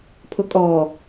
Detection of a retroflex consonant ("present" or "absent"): absent